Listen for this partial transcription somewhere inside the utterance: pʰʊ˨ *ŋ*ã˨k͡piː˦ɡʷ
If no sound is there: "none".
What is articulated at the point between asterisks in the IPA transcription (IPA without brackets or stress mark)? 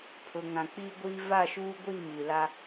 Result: ŋ